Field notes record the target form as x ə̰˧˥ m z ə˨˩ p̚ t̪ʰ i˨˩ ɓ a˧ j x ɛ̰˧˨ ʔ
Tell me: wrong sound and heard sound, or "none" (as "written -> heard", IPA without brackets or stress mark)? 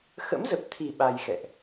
none